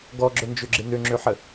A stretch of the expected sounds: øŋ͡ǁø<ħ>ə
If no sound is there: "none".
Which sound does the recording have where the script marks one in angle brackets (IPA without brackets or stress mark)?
ħ